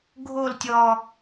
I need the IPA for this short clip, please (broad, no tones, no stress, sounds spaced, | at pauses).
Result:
ɡʱ o l tʲ ɔ